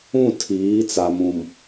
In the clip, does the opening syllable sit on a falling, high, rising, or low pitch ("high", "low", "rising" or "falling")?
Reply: falling